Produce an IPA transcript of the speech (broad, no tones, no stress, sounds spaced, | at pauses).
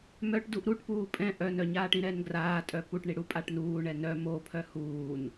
m œ ʈ d u ʔ ɾ u ʈ p uː pʼ ɛ̃ ʔ œ n œ ɲ aː ʈ ĩ ɾ ɛ n ɡ r aː tʼ œ p u ʈ ɳ i ɽ u pʼ a ʈ n uː ɳ ɛ n œ m o pʰ œ h uː n